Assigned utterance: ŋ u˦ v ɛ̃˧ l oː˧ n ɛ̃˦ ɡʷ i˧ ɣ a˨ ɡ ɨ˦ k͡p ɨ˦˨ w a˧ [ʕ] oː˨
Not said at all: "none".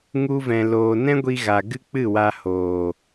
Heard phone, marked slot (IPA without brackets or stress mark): h